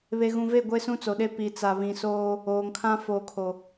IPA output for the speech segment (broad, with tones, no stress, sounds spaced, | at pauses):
β e˨ ɣ ũ˨ v e˦˨ ɡʷ e˦ s ũ˦ t͡s o˨ ɗ e˦ p i˨ t͡s a˨ β ĩ˨ s oː˦ | oː˨ ŋ kʰ ã˦ f oː˨ kʰ o˨